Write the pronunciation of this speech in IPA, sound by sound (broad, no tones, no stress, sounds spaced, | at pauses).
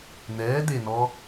n̪ ɛː d̪ e n ɔ